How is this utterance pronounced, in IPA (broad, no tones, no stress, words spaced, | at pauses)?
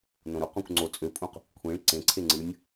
nõɾuqõkʷ ŋ͡ǀo t͡sʼøpʼũq | kʷʰĩɭ ǀẽǀʰe ŋ͡ǀɯnʲ